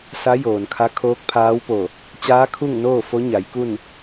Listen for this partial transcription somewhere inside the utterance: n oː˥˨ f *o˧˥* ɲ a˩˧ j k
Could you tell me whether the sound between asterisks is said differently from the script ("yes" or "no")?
no